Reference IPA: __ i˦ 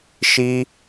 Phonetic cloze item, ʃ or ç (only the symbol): ʃ